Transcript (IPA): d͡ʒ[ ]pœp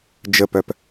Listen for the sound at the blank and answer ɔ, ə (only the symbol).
ə